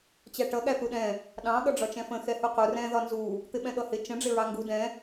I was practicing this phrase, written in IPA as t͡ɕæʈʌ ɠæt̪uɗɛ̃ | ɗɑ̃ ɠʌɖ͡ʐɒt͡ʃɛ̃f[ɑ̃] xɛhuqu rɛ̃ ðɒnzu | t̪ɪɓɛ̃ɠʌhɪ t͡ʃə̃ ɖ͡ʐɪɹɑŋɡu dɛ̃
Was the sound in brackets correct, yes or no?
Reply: no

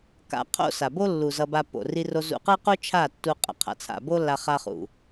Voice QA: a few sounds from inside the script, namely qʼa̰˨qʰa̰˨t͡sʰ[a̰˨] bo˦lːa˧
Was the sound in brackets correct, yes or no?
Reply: yes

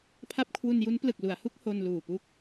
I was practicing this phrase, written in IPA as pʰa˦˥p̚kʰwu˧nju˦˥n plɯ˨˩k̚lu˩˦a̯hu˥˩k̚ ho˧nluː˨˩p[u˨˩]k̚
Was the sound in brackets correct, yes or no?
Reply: no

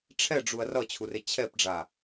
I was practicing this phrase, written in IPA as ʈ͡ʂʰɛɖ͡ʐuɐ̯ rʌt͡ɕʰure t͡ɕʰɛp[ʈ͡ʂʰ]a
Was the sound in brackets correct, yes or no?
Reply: no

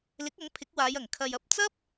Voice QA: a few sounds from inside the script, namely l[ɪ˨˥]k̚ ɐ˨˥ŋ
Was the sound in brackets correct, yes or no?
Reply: yes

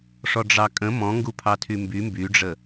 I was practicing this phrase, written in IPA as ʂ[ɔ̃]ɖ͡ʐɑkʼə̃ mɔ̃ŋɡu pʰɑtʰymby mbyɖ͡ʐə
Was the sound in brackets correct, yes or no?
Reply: no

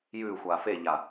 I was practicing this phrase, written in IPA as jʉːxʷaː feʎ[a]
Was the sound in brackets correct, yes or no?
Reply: yes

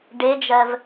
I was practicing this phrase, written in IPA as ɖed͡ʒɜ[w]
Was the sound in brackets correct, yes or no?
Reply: no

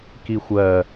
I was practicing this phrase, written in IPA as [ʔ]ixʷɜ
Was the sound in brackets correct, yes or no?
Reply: no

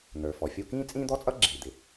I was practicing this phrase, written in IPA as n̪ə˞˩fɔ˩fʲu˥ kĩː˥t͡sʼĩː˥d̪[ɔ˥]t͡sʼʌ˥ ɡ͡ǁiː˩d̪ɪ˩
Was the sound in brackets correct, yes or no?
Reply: yes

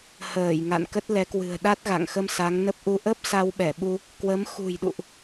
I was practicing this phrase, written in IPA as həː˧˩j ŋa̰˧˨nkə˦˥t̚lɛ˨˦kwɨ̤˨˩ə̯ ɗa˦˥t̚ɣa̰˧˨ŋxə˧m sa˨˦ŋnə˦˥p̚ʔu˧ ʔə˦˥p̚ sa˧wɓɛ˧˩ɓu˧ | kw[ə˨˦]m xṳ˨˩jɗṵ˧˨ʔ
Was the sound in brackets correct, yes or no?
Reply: yes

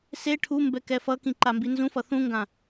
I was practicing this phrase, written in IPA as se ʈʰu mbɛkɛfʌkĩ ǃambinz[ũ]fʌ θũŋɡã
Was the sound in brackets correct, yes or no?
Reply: yes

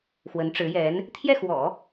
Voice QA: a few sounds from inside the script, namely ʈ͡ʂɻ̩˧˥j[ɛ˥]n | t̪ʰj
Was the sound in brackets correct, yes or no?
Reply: no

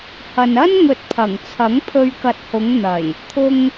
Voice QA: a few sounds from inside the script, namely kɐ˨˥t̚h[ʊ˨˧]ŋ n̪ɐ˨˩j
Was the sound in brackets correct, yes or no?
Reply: yes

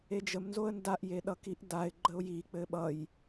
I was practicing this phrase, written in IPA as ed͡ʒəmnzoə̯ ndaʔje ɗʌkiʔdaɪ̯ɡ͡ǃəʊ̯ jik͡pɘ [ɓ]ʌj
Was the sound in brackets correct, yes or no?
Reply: yes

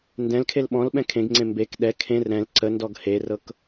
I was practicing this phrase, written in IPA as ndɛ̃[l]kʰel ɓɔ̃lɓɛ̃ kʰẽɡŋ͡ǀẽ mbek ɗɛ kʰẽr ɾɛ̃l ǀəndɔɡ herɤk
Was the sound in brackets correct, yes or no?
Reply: yes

